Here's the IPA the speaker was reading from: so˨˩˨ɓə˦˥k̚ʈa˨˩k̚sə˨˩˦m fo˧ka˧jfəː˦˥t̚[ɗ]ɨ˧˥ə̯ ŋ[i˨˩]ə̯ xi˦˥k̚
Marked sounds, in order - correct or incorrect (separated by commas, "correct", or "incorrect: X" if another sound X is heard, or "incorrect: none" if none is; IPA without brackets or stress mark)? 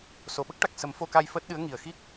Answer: correct, correct